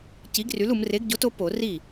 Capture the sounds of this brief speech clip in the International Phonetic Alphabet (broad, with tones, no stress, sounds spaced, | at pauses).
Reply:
c i˨˥ ɡ r y˨˥ l u˩˧ m r e˨˥ ɡ ɟ o˨˥ t o˨˥ p o˧˩˧ r i˥˩